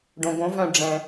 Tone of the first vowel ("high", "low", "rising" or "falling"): low